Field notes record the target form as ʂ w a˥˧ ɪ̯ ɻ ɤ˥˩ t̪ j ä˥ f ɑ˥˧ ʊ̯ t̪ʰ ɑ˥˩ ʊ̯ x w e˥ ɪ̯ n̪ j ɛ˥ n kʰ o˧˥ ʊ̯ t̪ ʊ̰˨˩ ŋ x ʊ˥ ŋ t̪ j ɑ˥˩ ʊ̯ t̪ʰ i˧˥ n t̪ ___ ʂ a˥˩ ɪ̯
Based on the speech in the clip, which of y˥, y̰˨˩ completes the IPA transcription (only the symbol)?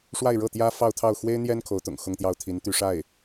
y˥